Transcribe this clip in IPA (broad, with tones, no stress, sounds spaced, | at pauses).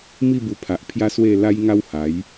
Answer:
m i˥˧ b u˧ pʰ a˨ ʔ pʰ j a˦ s w e˥˧ l a˦ j ŋ a˦ w h a˨˦ j